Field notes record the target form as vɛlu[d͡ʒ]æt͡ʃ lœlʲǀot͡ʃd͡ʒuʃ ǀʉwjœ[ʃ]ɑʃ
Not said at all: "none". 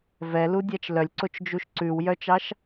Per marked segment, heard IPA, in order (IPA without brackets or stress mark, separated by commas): dʲ, t͡ʃ